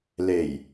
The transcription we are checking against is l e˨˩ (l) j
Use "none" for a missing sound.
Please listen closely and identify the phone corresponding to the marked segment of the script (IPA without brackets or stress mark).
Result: none